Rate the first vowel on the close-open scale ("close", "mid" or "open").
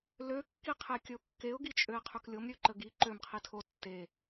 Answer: mid